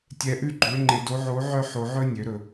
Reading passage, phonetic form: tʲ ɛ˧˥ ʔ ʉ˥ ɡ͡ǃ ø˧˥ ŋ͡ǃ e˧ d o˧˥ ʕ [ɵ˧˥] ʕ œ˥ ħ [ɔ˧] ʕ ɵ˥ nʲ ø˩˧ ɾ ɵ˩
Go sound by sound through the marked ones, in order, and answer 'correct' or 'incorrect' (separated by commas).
incorrect, incorrect